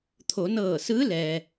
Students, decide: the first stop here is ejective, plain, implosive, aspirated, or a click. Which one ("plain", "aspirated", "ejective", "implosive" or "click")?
aspirated